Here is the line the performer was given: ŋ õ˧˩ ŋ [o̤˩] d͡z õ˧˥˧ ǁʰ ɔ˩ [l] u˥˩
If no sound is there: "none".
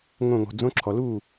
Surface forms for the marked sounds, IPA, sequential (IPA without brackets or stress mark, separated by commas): o̤˩, l